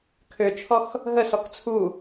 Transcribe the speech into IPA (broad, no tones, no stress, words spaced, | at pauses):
kʰøt͡ʃʰɔx | ɦəsɔk t͡sʰu